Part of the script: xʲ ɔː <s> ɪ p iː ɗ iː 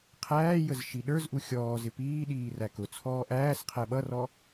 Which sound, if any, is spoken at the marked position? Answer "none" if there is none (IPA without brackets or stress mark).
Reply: z